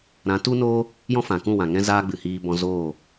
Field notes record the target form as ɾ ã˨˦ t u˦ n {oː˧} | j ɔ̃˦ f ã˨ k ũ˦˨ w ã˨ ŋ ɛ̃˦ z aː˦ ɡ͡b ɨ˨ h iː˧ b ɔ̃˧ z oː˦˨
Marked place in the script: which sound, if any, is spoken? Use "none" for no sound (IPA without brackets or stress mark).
oː˦